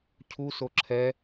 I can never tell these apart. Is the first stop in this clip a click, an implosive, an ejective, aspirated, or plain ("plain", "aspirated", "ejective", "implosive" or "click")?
aspirated